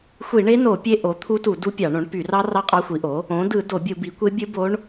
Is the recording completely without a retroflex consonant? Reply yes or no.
no